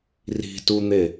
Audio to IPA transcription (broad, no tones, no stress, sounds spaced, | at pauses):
r i̤ t u n̪ e